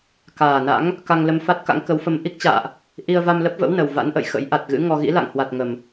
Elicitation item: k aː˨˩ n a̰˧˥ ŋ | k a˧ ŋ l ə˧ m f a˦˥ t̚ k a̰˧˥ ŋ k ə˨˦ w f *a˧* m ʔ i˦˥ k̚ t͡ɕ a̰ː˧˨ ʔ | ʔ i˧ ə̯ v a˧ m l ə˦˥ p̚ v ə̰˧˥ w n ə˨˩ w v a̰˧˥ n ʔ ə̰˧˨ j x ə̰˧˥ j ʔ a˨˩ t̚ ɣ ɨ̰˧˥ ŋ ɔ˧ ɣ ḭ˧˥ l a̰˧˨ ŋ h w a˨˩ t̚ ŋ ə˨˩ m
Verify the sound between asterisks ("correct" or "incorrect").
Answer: incorrect